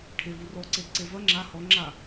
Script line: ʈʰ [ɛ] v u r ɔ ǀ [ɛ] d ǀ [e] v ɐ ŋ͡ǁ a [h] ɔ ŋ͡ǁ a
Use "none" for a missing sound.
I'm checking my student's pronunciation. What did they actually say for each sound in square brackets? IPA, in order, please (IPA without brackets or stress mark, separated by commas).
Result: e, e, e, h